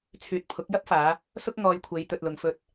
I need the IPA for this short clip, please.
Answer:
t͡sʰyː˨t̚pʰʊ˨˥k̚jɐ˥p̚faː˨˧ | sʊ˥k̚ ŋɔː˧jkʷʰe˨˧j t̪ɵ˨t̚lʊ˨ŋfɵ˧t̚

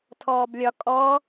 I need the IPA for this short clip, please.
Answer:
tʰɔːblʲɒ kʼɔ

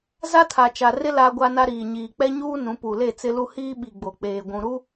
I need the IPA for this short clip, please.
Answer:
za˦tʰa˨t͡ʃa˨rɪ˦ la˦ɡʷa˦na˦ ɾiː˨ɲiː˨ k͡pɛ˦ɲuː˦ nũ˨˦pu˨ le˦˨t͡sɪ˦ lu˦ hiː˦ɓi˨ɡ͡bo˨ k͡peː˨ ɡʷũ˨ɾu˦

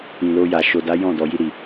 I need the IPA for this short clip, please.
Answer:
ĩ˨lo˧ja˨ ʃo˨da˨˦ jɔ̃˦˨ dɔ˨ji˧ ɾi˨

